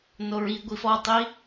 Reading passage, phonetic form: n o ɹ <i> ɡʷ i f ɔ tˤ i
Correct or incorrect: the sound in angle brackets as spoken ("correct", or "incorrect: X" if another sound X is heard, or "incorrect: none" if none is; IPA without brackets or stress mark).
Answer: correct